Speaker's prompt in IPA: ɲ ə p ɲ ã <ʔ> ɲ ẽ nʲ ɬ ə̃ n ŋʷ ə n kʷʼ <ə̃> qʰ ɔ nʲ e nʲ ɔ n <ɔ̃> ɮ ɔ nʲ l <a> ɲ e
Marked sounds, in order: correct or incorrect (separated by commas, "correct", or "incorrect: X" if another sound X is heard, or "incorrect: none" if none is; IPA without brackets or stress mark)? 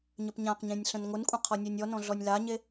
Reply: incorrect: q, correct, correct, correct